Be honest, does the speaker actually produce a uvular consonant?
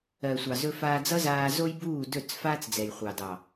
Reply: yes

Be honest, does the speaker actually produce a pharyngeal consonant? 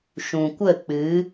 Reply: no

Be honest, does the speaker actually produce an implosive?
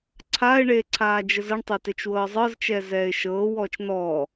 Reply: no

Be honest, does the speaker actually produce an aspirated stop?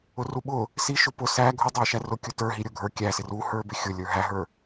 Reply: no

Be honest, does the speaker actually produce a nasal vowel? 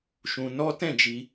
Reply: yes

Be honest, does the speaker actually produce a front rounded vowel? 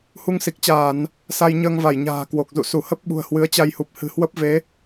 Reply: no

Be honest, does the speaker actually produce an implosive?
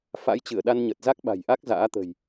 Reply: yes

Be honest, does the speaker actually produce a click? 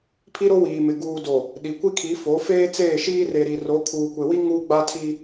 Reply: no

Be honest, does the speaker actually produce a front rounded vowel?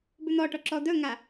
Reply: yes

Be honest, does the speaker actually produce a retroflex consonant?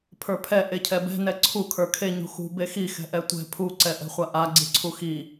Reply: no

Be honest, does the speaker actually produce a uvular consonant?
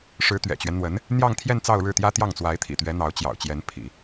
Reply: no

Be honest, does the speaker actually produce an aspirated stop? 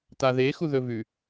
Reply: no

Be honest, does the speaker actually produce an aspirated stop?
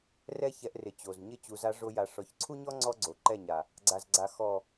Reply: yes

